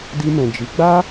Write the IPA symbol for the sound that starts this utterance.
d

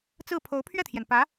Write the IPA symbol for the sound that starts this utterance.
t͡s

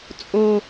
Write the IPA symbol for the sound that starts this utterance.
t͡sʼ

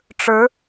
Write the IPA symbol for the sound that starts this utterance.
ʈ͡ʂ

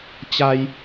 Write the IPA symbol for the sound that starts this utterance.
t͡ɕ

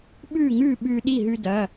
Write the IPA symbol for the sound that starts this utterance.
ɓ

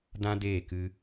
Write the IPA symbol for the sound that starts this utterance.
d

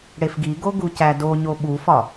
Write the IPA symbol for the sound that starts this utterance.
ɽ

